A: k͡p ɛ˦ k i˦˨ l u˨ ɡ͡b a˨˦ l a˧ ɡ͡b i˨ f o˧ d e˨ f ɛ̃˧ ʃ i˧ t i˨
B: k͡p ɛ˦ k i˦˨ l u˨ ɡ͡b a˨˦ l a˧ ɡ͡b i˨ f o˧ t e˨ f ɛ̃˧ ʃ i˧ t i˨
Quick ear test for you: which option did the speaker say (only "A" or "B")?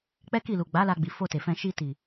B